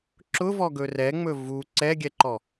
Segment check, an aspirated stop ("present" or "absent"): absent